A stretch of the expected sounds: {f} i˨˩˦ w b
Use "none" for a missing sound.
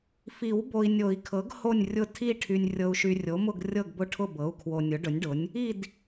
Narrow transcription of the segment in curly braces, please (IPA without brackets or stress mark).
f